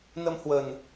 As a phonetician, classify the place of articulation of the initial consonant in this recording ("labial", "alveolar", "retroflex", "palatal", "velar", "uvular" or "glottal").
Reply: alveolar